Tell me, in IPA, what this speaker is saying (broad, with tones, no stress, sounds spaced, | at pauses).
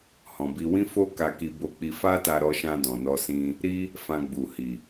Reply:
h ɔ̃˨ b i˧ w ĩ˦ f o˦ k a˧ k i˧ b o˧ k͡p i˧ f a˦ t a˧ ɾ ɔ˧ ʃ ã˧ d ɔ̃˨ n ɔ˧ s ĩ˧ | ɾ i˦ | f ã˧ ɡ͡b u˨ h i˨